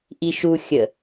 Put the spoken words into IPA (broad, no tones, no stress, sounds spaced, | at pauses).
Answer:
ʔ i ʃ u xʲ ə